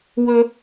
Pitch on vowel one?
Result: high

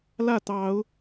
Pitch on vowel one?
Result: falling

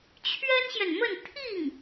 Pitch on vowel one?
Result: high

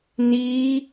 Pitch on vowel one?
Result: high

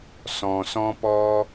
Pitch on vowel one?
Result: low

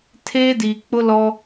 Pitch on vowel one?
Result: high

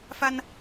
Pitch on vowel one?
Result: high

